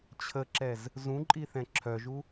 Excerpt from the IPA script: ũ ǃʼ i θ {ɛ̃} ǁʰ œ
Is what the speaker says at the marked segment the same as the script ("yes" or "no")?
yes